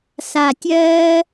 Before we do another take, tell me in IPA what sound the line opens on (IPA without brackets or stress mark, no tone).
s